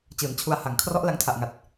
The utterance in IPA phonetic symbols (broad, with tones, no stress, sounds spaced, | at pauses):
t͡ɕ ɯː˩˦ n t͡ɕʰ u˧ a̯ h a˨˩ ŋ kʰ r ɔ˦˥ ʔ l a˧ ŋ tʰ a˨˩ ʔ ŋ a˨˩ t̚